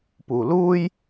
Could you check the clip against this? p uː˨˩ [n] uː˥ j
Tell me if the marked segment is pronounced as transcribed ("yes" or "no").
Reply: no